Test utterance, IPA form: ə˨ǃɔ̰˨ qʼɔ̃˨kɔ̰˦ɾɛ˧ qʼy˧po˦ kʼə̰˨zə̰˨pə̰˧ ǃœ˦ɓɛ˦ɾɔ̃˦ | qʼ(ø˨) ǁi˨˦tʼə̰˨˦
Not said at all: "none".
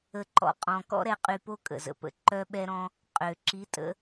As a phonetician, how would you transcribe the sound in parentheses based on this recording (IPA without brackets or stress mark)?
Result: ø˨